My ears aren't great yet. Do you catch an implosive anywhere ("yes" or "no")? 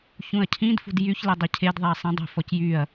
no